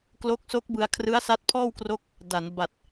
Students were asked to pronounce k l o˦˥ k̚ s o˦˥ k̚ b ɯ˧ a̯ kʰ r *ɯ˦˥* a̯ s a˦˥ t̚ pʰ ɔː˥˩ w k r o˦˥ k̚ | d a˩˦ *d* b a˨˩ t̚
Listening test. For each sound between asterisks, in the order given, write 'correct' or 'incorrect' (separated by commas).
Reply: correct, incorrect